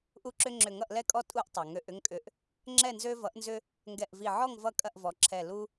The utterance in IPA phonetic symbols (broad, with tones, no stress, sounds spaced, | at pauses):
ʔ u˦ ǁ ʏ˦ ŋ͡ǁ ʏ˧˩ ŋ ʌ˥˨ ʔ l ɛ˦ kʼ ɔ˦ tʼ u˦ ʔ tˤ ʌ˩ ŋ ø˧˩ ʔ ʏ˦ ŋ kʼ ʏ˧˩ ʔ | ŋ͡ǁ ɛ˥˨ n z ø˦ v ʌ˩˥ ʔ n z ʏ˦ | ŋ ɡ ɛ˧˩ ʔ v i˧˩ ʕ ɔ˥˨ ŋ v ʌ˥˨ kʼ ɐ˥˨ ʔ v ɔ˩˥ ǁʰ ɛ˧˩ l u˦